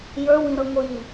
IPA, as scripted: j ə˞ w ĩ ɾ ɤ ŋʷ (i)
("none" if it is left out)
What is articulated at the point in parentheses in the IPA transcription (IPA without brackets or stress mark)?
i